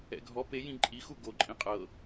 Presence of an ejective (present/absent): present